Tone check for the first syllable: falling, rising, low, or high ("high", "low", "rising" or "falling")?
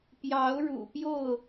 rising